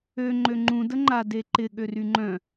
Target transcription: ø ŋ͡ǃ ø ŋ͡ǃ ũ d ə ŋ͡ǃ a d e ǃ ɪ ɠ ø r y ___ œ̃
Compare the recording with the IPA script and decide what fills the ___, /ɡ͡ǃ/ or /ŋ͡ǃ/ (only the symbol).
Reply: ŋ͡ǃ